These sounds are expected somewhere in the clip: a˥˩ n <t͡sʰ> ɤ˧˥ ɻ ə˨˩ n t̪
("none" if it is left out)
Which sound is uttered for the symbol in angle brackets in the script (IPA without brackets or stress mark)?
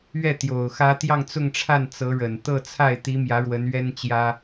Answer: t͡s